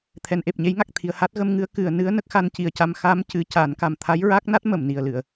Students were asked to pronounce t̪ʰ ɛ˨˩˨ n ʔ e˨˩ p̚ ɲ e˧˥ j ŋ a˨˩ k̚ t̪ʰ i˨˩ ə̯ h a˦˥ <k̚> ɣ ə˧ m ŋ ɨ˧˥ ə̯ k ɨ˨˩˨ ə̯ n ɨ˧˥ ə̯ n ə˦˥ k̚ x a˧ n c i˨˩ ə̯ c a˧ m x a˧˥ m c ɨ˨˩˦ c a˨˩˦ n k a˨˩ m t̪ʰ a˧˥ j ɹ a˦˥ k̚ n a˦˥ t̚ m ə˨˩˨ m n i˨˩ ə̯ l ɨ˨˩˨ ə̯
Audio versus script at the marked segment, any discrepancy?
yes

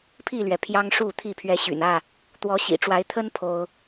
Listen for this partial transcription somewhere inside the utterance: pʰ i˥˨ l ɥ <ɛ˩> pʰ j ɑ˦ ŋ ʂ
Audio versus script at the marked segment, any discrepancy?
no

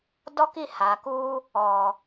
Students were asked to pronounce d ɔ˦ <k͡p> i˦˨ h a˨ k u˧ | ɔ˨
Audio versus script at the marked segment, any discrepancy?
yes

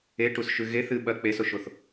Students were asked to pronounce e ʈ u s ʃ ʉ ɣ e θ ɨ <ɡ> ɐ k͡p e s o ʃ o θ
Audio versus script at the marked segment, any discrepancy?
yes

